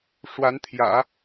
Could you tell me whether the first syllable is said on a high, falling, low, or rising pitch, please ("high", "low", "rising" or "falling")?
rising